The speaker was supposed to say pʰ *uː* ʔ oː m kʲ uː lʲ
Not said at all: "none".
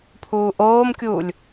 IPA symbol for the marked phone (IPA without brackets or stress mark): uː